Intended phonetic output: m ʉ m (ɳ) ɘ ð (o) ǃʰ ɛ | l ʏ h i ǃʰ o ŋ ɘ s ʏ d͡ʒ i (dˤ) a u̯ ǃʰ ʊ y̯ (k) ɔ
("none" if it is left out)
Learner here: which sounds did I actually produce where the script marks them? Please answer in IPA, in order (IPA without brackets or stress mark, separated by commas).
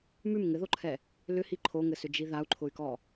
ŋ, o, ð, k